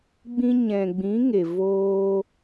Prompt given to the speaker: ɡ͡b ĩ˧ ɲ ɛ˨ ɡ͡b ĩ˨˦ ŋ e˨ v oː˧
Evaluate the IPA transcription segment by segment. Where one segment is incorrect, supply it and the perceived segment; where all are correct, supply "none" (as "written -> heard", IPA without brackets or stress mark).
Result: ɛ˨ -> ɛ̃˨